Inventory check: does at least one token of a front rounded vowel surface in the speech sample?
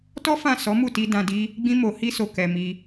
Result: no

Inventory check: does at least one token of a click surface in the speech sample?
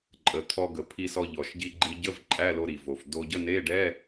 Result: yes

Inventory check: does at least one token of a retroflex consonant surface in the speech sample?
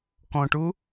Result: yes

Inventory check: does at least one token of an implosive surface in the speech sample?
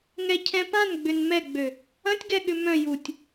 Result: yes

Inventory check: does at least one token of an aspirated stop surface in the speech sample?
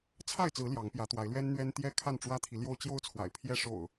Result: yes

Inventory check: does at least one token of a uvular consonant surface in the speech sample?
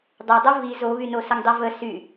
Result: no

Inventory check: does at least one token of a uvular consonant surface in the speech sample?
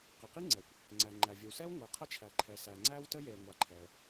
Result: yes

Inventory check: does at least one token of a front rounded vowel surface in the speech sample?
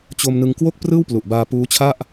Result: no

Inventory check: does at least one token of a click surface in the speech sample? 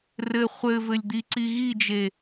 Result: yes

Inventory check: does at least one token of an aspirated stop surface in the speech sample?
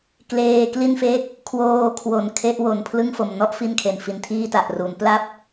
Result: yes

